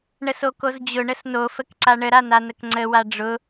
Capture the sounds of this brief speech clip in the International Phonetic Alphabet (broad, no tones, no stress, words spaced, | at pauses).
ɳəsokozd͡ʑʊ ɳəsno fəkǀaɳə ɾananəkŋ͡ǀə waɖ͡ʐʊ